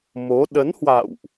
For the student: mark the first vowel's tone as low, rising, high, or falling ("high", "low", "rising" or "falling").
rising